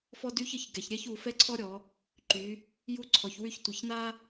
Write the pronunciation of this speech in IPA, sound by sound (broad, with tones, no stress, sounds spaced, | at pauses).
f ɔ˥ d y˥ ç ə˨˦ ç ɡ ɛ˨˦ ç ɾʲ ɛ˥ ç u˨˦ f ɛ˥ ǀʰ ɔ˥ ɾʲ ɔ˨˦ | ǃ y˨˦ | j u˥ ǀʰ ɔ˨˦ ç w y˥ ç tʷ ə˨˦ ç n a˥